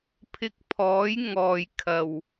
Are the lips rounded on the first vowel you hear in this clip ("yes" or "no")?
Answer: no